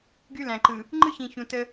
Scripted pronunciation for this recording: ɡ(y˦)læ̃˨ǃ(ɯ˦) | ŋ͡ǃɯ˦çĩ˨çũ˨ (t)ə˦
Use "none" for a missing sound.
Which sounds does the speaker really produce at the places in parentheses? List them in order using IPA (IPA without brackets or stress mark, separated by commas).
y˦, ɯ˨, t